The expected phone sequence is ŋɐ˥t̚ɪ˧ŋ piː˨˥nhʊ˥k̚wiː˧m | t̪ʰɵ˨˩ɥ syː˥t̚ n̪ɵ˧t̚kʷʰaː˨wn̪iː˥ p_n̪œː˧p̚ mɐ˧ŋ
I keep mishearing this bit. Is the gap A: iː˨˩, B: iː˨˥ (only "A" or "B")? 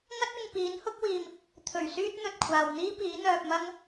B